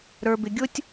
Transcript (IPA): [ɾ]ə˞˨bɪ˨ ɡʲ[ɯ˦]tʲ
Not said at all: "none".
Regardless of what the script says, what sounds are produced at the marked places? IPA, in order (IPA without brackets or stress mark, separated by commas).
ɾ, ʊ˦